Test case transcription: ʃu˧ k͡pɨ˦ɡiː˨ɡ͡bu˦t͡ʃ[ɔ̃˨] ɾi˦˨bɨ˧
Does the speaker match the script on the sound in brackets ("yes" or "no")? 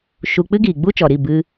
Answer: no